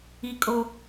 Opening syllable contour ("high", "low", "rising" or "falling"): high